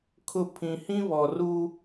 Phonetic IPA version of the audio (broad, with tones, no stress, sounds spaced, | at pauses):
kʰ ʊ˦˨ pʰ ĩ˨ h ĩ˦ β ɔ˨ r u˦